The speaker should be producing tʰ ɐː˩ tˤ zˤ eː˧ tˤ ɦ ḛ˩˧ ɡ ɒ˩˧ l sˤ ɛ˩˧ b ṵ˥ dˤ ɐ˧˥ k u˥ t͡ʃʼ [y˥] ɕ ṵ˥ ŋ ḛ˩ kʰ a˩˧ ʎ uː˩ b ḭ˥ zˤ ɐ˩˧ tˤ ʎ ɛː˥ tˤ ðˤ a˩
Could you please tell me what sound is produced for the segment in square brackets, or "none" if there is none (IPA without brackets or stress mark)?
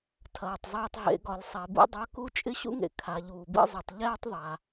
ɪ˥